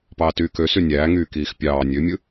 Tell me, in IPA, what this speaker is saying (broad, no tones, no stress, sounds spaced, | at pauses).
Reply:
p ɑː t yː k ø s y nʲ æː ŋ yː k iː x pʲ ɑː nʲ ø mʲ ɯ